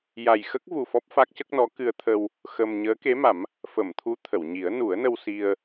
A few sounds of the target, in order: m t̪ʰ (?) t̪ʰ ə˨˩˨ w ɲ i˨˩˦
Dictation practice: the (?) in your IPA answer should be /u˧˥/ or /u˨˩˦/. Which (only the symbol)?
u˧˥